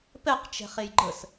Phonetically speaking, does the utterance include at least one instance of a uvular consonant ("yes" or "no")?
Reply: yes